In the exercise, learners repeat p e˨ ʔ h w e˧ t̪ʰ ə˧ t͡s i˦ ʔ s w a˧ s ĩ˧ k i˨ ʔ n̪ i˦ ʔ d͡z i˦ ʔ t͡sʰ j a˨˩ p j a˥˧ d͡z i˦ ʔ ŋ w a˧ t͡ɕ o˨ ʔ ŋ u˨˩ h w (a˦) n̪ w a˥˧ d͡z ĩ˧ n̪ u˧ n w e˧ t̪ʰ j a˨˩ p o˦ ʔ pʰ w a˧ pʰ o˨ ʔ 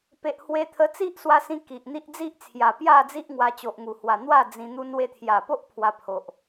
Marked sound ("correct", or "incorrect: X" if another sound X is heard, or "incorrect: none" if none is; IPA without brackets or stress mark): incorrect: a˨˩